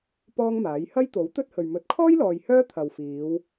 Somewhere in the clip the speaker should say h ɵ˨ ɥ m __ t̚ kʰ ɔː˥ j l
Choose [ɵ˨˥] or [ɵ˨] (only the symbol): ɵ˨˥